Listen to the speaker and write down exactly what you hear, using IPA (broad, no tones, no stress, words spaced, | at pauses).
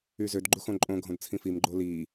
yzød ɡ͡ǃuxõǃʼõ ɡʱõdt͡sʰĩfim ɡ͡ǃoli